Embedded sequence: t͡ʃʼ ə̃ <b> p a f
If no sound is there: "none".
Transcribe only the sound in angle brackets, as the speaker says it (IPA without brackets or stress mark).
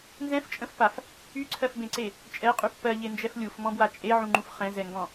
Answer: f